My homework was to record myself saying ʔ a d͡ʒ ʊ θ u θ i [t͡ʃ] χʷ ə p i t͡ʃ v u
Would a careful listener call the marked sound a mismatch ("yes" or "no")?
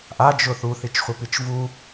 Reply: no